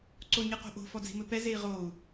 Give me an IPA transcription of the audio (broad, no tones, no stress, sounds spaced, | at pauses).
ǀ o ɲ ɨ q o̤ ʔ o̤ f ɔ d͡z i̤ m ɘ p ɛ z e i̯ ʁ o u̯